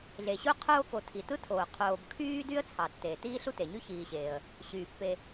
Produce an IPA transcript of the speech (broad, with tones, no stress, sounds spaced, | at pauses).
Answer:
ɮ e˩ ɕ u˦ qʰ oː˥ k o˨ tʰ i˩ t ɯ˥ tʰ oː˩ qʰ oː˨ b kʰ yː˥ d y˥ ə̯ t͡sʰ ɑ˩ tː eː˩ t iː˥ ɬ u˥ t e˩ ɲ y˥ ç iː˨ ɕ eː˩ ə̯ | ɕ yː˩ pː e˨